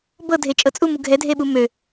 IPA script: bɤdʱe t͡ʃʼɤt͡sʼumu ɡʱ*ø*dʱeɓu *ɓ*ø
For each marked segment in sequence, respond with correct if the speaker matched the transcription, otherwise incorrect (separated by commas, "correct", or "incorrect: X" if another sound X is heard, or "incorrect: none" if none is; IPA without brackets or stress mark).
incorrect: ɛ, incorrect: m